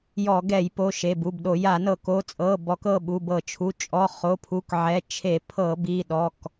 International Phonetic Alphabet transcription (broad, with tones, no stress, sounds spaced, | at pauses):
j ɔ˧˩˧ ɡ ɛ˧˩˧ j p o˩˧˩ ʃ e˩˧˩ b u˩˧˩ b ɗ o˧˩˧ j a˧˩˧ n ɤ˧˩˧ k o˩˧˩ t͡sʼ ɤ˩˧˩ b ɔ˧˩˧ k ɤ˩˧˩ ɓ u˩˧˩ b ɤ˧˩˧ t͡ʃʰ u˩˧˩ t͡ʃʼ ɔ˩˧˩ χ o˩˧˩ pʰ u˩˧˩ k ʕ ɛ˩˧˩ t͡ʃʰ e˧˩˧ pʰ ɤ˧˩˧ b i˩˧˩ ɗ ɔ˩˧˩ k